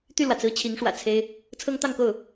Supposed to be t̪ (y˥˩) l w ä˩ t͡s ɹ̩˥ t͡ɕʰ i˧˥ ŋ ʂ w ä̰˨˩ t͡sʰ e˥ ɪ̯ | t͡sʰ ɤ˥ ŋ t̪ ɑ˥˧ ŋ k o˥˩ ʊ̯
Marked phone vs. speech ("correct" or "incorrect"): correct